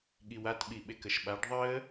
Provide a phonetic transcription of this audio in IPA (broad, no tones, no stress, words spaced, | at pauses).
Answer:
ɠiwat ɓiɓekəʃɓaɖ ðˤəː